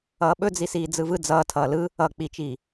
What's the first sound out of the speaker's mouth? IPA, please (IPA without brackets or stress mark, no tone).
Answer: ʌː